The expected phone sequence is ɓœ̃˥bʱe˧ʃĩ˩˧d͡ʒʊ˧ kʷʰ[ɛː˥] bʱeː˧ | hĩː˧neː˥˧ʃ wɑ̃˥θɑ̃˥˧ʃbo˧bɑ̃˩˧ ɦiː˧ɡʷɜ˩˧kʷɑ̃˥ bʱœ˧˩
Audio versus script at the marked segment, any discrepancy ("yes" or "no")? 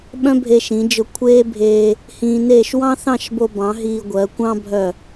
yes